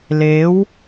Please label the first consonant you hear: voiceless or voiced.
voiced